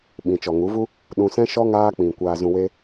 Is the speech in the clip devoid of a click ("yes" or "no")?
yes